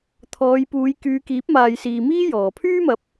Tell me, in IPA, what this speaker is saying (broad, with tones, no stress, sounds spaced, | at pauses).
t̪ʰ ɔː˨˧ j p uː˨˧ j k yː˨˧ k iː˨˥ p̚ m aː˨ j s iː˨ m iː˥ j ɔː˨˧ pʰ yː˥ m ɐ˨˥ p̚